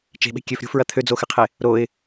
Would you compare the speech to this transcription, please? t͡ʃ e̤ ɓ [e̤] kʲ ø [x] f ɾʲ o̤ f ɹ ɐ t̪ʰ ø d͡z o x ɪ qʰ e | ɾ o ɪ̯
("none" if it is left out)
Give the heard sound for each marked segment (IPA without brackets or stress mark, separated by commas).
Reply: e̤, none